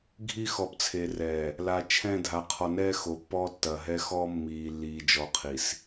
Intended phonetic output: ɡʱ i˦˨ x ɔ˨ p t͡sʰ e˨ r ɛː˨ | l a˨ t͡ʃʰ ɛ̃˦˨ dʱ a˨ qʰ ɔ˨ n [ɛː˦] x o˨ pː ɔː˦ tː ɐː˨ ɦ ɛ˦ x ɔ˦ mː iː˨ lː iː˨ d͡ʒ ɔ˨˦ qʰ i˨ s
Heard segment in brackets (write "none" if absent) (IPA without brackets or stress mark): ɛː˦